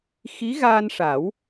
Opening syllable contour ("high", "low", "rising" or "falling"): rising